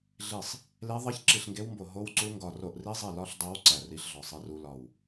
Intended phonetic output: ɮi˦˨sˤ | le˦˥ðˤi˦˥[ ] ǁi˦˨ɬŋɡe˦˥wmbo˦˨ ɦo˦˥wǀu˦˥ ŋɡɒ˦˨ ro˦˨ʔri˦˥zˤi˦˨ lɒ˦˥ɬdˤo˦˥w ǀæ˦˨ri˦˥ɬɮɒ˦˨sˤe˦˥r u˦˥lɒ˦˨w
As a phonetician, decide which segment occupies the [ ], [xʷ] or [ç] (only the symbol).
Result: ç